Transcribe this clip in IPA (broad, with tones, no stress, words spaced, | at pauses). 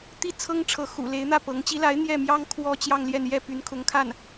t̪i˥˩ t͡sʰɤ˥ŋʈ͡ʂʰɤ˧˥xṵ˨˩le˧˥ɪ̯ n̪ä˥˩ pɤ˧˥ŋ t͡ɕi˧˥la˧˥ɪ̯ n̪jɛ˥˩mjɑ˥ŋ kʰwɔ˥t͡ɕjɑ˥˧ŋljɛ˥˧n jɛ˥˩py˧˥n kʰʊ˧˥ŋkʰa˥˩n